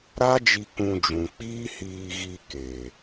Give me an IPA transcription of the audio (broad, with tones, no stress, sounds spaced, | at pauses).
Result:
ɾ a˦ d͡ʒ i˧ k ũ˧ d͡ʒ ũ˨ k͡p iː˦ h iː˧ ɣ i˧ k e˨